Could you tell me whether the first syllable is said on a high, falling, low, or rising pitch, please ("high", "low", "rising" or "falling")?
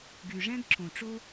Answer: low